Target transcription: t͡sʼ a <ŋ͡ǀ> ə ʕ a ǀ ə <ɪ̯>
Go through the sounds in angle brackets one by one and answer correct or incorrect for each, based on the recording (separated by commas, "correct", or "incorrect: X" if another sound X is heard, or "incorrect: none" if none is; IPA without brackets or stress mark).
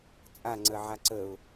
correct, incorrect: ʊ̯